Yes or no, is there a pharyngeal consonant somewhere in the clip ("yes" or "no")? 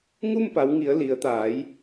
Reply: no